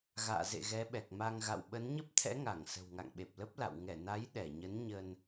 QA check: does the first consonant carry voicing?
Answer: yes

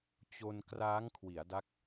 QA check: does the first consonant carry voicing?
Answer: no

